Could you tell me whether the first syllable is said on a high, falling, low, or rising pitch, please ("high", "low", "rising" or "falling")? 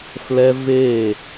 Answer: high